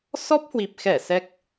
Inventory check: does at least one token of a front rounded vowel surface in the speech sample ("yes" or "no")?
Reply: no